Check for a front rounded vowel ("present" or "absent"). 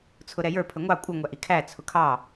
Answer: absent